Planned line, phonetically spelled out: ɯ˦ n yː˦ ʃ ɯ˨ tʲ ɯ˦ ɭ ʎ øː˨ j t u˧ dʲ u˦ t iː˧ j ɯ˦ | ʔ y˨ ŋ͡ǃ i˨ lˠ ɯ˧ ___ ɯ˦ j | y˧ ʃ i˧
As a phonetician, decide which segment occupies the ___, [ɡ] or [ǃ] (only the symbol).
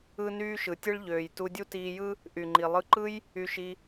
ǃ